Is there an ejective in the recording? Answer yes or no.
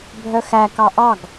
no